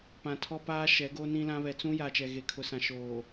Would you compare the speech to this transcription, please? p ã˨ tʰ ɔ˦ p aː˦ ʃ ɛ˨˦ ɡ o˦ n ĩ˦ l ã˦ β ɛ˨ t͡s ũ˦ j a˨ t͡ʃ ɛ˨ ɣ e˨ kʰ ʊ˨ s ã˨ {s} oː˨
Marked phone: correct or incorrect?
incorrect